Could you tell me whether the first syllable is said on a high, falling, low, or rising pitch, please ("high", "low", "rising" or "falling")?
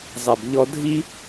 low